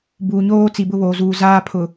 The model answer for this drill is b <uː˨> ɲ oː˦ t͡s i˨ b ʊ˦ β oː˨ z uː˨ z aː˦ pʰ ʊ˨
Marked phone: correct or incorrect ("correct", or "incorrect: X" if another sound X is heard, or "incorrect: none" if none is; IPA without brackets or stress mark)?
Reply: correct